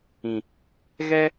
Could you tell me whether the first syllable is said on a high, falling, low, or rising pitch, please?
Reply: low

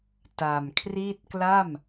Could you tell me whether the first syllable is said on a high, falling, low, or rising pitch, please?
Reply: low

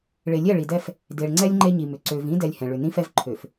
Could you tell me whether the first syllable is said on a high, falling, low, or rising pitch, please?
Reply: low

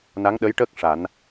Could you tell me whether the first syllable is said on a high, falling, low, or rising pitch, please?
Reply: rising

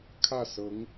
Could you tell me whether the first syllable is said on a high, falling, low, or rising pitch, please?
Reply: falling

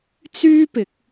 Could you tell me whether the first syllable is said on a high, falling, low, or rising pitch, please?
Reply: high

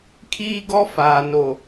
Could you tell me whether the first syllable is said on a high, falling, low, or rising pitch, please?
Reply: high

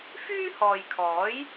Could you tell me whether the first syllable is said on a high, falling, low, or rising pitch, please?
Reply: high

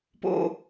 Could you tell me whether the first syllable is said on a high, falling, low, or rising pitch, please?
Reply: low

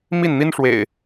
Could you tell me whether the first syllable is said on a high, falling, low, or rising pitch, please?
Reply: falling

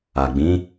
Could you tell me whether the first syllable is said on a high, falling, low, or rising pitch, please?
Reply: low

